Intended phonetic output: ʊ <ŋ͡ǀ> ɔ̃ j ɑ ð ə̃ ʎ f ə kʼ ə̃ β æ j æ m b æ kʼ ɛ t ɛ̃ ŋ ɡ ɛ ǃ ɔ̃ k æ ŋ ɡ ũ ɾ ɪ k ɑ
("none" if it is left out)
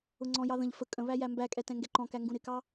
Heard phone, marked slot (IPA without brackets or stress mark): ŋ͡ǀ